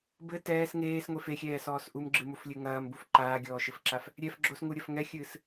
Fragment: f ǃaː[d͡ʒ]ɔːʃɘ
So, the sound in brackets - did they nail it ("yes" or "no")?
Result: no